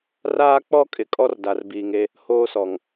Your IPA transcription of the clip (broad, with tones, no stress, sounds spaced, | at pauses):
r aː˦ k͡p ɔ˦ kʼ ɪ˨ kʼ ɔ˦ r d a˨ r b iː˨ ŋ e˦ | h oː˦ s ɔ˨ ŋ